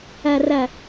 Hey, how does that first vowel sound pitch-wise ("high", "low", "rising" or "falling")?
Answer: low